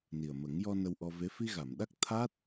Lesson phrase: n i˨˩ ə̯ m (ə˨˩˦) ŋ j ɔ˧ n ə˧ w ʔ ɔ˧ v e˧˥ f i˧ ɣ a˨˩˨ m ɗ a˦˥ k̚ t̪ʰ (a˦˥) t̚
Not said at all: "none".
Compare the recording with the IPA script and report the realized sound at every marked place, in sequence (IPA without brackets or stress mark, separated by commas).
ə˨˩˦, a˦˥